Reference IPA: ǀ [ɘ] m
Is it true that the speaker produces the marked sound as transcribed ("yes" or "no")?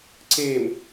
no